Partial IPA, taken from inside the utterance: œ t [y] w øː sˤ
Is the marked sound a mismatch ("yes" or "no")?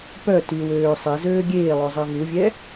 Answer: no